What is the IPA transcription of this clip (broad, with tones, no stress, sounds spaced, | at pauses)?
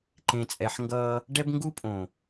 ǃ ẽ˨ t͡sʼ ɛ˨ ħ ŋ ɡ ʌː˦ | ɖ ɛ˦ b ŋ ɡ u˦ pʼ õ˨